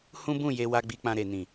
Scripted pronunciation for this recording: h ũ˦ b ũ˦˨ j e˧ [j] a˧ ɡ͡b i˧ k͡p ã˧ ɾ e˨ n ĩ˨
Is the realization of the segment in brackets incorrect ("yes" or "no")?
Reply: yes